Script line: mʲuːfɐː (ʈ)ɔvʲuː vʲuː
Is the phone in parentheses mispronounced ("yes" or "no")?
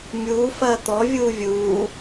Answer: yes